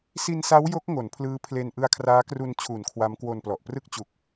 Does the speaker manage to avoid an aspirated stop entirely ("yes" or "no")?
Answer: no